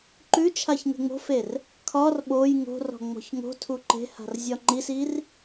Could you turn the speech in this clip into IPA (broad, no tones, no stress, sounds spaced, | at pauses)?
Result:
ǃ ʉ t͡ʃʰ a ç ŋ e̤ ŋ͡m o̤ f e r | kʰ ɒ r ɓ o j ŋ o̤ r ɔ̤ ŋ͡m ɔ̤ ç ŋ o̤ tʰ u ǃ e̤ h a̤ r zʲ ɒ ŋ͡ǃ i s i r